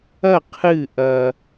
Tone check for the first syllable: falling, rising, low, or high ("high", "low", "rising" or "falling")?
falling